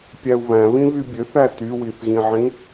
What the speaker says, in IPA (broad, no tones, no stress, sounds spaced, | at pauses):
pʲ æ u̯ β æ̃ β ĩ β y bʲ ø θ æ t y w i θ ɣ ĩ ʕ ĩ